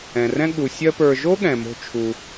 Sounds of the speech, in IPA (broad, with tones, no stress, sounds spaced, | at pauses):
ɛ̃˩ r ɛ̃˦ ɠ u˩ sʲ ɜ˦ p ə˞˨ ʒ o˥ ɠ ɛ̃˩ m o̤˨ t͡ʃʰ u˩